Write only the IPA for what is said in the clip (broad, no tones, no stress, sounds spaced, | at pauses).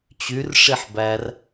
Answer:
t͡ɕ y r ʂ i ħ b æ r